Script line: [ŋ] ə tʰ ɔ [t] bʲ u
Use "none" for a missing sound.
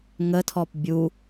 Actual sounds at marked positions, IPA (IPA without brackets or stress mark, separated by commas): ŋ, p